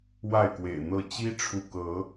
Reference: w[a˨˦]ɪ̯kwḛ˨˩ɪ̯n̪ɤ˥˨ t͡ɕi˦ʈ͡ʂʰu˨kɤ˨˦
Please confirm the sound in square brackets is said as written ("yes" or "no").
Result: no